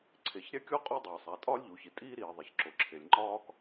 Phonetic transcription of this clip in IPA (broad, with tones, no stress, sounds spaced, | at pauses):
ǀʰ e˩ ç ɾʲ æ˥ kʲ o˥ qʼ u˥ dˤ e˩ sˤ æ˩ tʼ ɒː˥ lʲ ʎ u˩ ç i˩ tʼ iː˥ ɾ iː˩ ðˤ i˩ ç ǁ o˩ ǁʰ e˩ lʲ ŋ͡ǃ ɒː˥ k